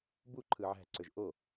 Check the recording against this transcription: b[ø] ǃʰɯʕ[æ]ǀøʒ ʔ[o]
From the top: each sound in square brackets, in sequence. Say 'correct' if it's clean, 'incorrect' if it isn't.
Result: incorrect, incorrect, correct

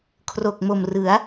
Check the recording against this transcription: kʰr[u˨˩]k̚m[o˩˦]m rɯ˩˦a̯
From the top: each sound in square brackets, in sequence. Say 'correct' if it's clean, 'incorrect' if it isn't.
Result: incorrect, incorrect

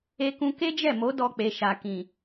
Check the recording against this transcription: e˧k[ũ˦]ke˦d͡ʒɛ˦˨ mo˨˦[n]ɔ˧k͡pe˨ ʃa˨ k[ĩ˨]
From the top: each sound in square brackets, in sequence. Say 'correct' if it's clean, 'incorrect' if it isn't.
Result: incorrect, incorrect, correct

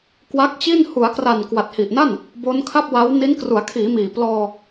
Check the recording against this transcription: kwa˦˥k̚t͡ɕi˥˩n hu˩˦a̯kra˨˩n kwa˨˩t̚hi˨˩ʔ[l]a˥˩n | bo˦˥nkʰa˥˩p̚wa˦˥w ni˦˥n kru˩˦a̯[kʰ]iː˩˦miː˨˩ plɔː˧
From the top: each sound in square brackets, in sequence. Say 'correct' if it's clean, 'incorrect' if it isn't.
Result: incorrect, correct

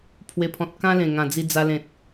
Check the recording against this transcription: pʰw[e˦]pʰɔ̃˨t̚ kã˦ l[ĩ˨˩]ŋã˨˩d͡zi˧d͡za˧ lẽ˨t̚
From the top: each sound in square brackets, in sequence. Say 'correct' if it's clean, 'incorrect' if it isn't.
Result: incorrect, incorrect

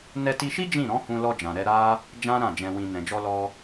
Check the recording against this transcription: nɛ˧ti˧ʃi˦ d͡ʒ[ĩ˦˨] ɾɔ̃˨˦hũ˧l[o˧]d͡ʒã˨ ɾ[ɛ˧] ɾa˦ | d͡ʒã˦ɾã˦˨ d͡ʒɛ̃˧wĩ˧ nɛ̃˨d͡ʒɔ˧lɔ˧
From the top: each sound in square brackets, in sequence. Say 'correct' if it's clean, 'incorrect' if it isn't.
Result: correct, incorrect, correct

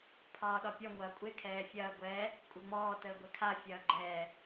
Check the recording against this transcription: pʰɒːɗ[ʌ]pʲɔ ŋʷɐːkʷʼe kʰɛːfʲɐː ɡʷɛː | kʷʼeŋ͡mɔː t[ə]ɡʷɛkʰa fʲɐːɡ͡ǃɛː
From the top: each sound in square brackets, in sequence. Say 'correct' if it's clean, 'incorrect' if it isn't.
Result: incorrect, incorrect

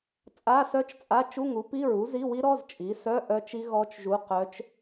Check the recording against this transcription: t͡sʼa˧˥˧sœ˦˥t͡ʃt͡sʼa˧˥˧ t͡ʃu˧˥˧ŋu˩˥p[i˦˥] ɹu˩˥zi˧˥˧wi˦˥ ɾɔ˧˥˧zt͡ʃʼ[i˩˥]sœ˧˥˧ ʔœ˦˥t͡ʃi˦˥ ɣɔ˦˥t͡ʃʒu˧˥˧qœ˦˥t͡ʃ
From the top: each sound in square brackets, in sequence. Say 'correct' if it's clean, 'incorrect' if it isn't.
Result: incorrect, correct

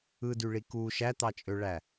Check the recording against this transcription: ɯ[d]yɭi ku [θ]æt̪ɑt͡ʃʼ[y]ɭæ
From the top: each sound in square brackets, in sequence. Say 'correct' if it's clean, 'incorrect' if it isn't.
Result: correct, incorrect, incorrect

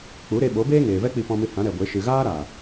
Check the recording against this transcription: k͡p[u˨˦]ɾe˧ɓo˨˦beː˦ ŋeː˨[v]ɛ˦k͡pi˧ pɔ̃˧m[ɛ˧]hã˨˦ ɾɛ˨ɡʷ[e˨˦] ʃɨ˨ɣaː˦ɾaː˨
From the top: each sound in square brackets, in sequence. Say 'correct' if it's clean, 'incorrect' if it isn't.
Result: correct, correct, incorrect, correct

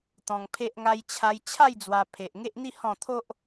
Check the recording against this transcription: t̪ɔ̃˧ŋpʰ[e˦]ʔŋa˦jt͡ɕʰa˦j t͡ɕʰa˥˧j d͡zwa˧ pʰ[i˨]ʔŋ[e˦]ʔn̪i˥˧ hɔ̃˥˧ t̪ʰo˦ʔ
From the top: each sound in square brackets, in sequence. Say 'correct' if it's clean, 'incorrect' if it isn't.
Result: correct, incorrect, correct

